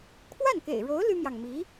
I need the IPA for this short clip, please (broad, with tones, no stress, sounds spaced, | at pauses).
kʰ w a˥˩ n k ḛ˨˩ ɪ̯ ɻ o˧˥ ʊ̯ l y˥ m j ɑ˨ ŋ m i˧˥